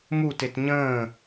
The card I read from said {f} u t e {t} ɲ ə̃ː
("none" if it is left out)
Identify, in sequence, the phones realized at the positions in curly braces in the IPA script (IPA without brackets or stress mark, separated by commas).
m, t